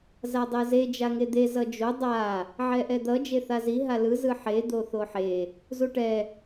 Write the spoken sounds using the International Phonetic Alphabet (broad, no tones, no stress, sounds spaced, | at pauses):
z a dˤ ɛ z e d͡ʒ a ŋ e d̪ e z ʌ d͡ʒ o dˤ a | ʕ ɛ ʔ ɛ d̪ ʌ d͡ʒ e θ a z i ɦ a l ɯ z ɯ ħ e d̪ o θ o ħ e | z u ʈ ɛ